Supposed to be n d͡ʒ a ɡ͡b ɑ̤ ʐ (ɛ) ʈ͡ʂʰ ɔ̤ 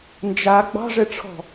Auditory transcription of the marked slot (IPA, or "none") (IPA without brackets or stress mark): ɛ